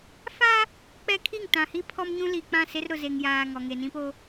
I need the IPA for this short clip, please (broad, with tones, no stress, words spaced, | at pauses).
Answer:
fa˦ | k͡pɛ˦ kʰi˦˨ŋtã˨hi˦ pʰɔ˦mɲũ˦ li˨ k͡pã˦˨se˦rɾʊ˨ze˨ŋ jaː˨ ŋɔ˨ ŋe˨nĩ˦po˦